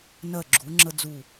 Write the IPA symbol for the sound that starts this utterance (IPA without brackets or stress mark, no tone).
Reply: n